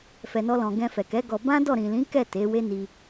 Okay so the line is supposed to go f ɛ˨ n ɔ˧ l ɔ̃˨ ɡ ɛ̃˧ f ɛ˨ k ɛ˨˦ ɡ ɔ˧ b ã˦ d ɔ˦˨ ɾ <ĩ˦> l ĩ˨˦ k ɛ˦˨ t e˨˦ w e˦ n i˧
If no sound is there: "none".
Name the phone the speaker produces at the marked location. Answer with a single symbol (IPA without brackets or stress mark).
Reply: ĩ˨